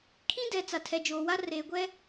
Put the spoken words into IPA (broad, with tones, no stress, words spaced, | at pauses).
kʰĩ˦dɛ˨ t͡sa˨tʰɛ˨d͡ʒoː˨wa˦ reː˨ɡʷɛ˦